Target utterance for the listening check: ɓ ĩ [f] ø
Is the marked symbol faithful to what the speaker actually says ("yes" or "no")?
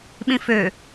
yes